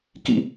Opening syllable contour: high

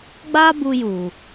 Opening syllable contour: high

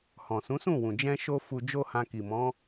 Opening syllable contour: low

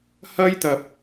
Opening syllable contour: high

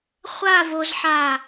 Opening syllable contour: falling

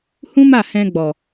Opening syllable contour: high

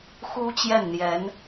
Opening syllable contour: high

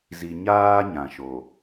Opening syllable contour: low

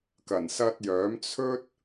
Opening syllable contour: low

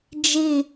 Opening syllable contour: falling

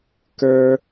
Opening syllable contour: high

